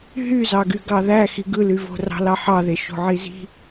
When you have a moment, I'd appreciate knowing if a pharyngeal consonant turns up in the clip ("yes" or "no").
yes